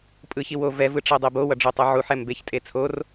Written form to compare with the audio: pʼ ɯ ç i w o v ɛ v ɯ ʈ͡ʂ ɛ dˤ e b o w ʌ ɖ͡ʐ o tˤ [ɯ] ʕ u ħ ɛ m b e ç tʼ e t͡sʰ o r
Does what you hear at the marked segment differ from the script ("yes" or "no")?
no